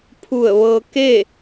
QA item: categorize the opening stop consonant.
aspirated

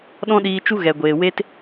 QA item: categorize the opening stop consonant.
implosive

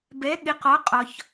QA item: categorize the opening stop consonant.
plain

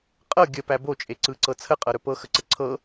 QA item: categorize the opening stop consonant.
ejective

